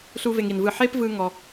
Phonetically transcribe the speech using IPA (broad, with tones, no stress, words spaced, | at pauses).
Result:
ɬu˥ve˧ŋi˩nvɯ˥˩ ħe˥pvɯ˧ ŋɔ˧